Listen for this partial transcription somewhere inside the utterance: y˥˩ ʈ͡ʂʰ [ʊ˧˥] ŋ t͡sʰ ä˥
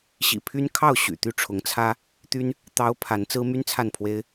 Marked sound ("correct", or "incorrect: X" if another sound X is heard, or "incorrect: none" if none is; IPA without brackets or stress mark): correct